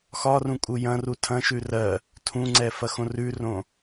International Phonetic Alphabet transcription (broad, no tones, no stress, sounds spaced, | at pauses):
x ɒ r ũ kʼ u j ɐ̃ r u tʰ ɐ̃ ʃ ʉ r ɜ | tʰ ũ ŋ͡ǀ ɛ f ɐ x õ r ʉ r õ